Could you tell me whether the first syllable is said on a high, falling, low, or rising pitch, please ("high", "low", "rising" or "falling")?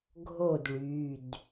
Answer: falling